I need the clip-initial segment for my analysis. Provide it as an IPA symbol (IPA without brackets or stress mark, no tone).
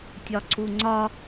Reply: tʲ